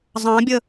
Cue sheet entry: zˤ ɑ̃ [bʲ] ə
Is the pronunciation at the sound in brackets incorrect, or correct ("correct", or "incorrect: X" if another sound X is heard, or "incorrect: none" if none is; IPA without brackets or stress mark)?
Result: correct